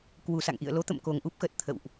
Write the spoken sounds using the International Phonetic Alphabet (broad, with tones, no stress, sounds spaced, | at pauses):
k w u˨˩ s a̰˧˨ ŋ ʔ ḭ˧˨ ə̯ l o˨˦ t̪ ə̰˧˨ m k o˨˩ ŋ ʔ u˦˥ p̚ x ə˨˩ t̚ t̪ʰ ə̰˧˨ w ʔ